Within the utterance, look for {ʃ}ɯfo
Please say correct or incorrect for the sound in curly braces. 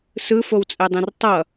incorrect: s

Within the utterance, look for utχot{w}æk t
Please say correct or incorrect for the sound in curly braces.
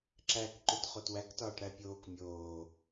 correct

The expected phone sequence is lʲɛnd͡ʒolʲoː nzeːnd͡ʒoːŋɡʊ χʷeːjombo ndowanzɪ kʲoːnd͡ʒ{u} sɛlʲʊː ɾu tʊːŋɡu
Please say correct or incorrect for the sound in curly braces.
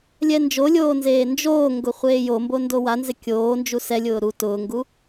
correct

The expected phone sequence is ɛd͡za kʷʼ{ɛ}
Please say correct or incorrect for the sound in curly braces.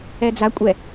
correct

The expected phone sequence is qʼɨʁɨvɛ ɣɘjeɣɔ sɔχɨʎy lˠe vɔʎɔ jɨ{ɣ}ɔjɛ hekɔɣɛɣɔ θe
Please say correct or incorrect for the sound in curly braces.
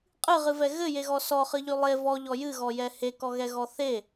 correct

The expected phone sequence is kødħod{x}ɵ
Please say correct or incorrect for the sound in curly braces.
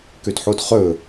incorrect: χ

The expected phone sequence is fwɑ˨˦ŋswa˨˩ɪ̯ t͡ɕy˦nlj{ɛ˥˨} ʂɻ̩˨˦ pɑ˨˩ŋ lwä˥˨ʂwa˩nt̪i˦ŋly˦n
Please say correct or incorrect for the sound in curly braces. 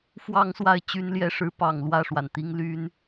incorrect: ɛ˦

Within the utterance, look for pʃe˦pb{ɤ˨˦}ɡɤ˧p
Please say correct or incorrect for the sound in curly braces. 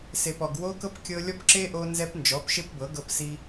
correct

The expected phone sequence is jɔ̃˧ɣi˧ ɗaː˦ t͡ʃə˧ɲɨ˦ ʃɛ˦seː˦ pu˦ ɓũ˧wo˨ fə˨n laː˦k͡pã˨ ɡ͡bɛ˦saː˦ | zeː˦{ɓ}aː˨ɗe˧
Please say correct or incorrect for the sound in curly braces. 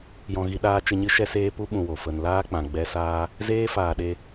incorrect: f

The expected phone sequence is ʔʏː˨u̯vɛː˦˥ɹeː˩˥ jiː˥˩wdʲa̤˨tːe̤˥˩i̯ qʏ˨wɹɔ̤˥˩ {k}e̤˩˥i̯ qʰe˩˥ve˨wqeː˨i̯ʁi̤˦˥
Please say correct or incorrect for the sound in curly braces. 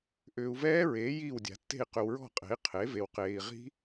incorrect: qʼ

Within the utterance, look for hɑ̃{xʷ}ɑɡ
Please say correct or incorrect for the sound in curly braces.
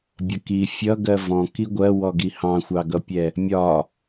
correct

